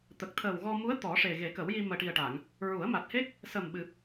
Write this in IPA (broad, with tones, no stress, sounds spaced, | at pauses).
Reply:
t̪ ə˨˩ k̚ t̪ʰ əː˨˩ w ɣ ɔ˧ m u˧˥ ə̯ t̪ ɔ˨˩˦ ʂ e˨˩ ɣ e˨˩˦ k ə˨˩˦ w j i˧ m əː˨˩ ʈ i˨˩ ə̯ ʈ a˨˩˨ ŋ | ɹ u˨˩˦ ə̯ m a˨˩ t̚ h e˦˥ k̚ | s ə˨˩ m ɓ ɨ˨˩ p̚